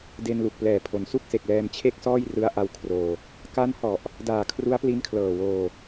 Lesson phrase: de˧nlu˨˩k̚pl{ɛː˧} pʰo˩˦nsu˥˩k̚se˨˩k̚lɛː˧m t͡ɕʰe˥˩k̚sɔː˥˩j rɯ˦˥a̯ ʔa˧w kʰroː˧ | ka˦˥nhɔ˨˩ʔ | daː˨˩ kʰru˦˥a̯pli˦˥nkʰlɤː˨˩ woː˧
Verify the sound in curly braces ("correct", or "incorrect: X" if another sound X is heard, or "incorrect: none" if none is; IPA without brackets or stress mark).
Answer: incorrect: ɛː˨˩